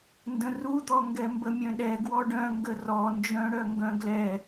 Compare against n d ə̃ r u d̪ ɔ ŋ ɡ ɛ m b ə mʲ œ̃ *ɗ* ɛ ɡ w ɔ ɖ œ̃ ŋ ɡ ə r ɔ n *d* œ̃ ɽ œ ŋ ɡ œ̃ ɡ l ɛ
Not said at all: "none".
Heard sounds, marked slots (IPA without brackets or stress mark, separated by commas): ɗ, d͡ʒ